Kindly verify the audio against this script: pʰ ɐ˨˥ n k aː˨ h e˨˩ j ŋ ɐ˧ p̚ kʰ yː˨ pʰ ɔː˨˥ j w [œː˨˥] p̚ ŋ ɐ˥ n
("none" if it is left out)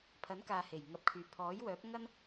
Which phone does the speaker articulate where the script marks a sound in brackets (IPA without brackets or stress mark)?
œː˨˥